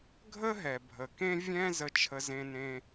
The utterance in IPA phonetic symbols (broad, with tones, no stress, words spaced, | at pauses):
ɡʱə˥ɦɛ˩ bʱə˩kẽ˥ vʲɛ̃˥ zə˥t͡ʃʰə˥ zẽ˥nẽ˥